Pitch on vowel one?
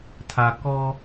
low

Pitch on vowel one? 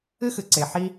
high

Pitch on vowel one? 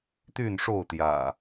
falling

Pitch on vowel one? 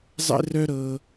high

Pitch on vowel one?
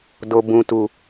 low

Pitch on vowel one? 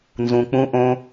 low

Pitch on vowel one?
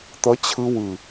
rising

